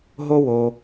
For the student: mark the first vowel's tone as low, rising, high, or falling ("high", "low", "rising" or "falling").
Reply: high